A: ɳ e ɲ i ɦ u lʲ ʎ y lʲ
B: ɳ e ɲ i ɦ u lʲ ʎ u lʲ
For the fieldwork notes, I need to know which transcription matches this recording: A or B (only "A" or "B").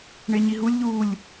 B